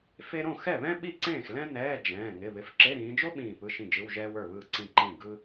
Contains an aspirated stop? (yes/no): no